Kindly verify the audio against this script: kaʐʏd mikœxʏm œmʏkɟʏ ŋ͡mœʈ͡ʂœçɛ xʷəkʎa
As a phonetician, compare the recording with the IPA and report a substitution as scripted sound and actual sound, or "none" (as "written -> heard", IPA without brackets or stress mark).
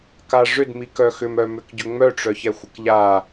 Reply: none